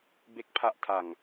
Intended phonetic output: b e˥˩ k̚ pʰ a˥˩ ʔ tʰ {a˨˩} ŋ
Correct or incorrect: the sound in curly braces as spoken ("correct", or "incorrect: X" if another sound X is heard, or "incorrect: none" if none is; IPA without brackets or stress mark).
correct